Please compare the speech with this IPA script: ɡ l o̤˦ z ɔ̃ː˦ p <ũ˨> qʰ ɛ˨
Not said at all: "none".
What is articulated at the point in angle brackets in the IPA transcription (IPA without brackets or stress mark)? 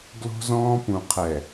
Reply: ũ˨